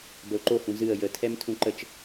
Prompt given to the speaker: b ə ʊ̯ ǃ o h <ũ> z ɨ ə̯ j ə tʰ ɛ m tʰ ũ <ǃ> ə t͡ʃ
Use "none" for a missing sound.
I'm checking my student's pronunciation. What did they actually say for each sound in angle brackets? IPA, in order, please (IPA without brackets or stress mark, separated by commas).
ũ, ǃ